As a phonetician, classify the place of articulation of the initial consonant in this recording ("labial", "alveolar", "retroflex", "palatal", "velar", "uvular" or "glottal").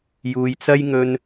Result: palatal